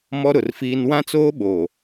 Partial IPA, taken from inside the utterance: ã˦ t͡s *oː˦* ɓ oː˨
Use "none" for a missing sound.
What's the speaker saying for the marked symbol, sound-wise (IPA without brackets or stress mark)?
oː˦